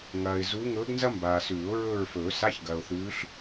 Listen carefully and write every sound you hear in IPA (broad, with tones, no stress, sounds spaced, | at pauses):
ŋ ɐː˨ ɪ̯ z u˧˥ ŋ ɵː˧˥ ɡ n z ɐ˥ m b aː˨ s ʉː˨˩˦ ʊ̯ ɹ ɵː˦˨ ɹ f ɵː˨˩˦ s a˧˥˧ ç ɡ ɐː˨ ʊ̯ θ ʉː˧˥ ɬ